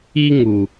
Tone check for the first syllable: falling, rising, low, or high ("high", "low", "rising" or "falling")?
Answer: high